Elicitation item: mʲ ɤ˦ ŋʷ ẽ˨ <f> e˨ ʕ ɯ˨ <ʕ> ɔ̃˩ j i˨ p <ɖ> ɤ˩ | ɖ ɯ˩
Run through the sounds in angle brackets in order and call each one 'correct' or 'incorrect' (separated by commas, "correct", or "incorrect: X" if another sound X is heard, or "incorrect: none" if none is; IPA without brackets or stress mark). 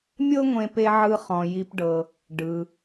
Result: incorrect: p, incorrect: χ, correct